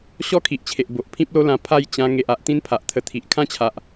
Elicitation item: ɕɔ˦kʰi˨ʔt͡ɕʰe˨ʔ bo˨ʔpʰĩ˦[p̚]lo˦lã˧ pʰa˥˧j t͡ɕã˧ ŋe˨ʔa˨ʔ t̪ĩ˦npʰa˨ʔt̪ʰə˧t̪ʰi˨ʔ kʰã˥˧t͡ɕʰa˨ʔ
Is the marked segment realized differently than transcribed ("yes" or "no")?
no